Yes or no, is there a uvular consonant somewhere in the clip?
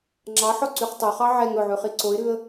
yes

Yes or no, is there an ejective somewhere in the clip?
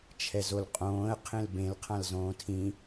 yes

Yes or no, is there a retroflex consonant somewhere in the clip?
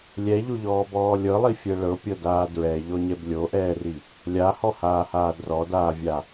yes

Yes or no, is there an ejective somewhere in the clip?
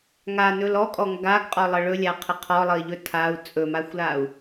yes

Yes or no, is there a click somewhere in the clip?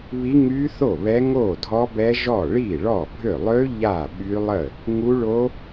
no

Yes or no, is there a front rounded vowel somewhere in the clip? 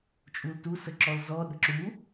no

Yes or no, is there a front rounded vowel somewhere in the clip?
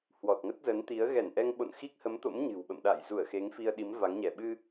no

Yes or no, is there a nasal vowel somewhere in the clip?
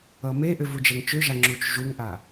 no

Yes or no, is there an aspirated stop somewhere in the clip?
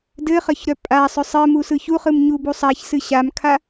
yes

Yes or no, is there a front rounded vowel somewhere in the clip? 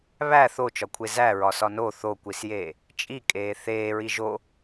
no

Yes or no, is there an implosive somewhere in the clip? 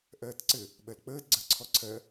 yes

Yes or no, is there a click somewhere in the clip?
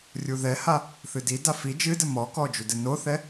no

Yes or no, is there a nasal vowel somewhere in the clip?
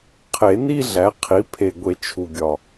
no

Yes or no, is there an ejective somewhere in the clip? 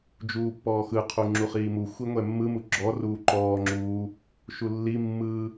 no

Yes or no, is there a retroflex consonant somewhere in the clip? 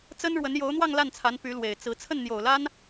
yes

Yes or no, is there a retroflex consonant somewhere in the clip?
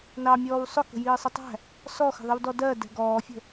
no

